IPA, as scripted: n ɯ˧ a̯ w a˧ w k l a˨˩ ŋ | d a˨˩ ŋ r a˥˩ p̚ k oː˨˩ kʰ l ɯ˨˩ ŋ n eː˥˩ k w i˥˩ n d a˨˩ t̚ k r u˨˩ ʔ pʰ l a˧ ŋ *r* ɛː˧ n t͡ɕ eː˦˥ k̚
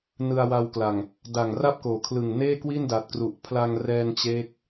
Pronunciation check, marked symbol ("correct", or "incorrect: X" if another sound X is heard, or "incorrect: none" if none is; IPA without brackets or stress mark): correct